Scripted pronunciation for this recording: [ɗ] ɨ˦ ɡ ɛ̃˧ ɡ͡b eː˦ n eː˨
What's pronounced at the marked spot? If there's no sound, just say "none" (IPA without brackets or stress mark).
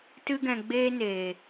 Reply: t